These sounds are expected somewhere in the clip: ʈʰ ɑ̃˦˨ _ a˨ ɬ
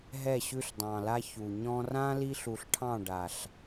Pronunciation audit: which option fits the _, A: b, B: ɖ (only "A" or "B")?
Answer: B